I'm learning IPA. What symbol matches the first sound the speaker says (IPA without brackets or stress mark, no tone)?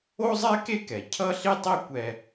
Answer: o